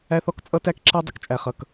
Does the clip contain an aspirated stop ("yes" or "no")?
no